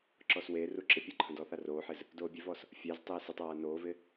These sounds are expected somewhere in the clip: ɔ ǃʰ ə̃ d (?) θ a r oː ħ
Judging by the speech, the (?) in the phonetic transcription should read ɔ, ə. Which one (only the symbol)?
ɔ